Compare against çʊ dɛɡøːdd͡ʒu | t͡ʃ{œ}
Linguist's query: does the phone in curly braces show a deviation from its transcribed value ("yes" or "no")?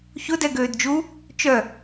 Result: no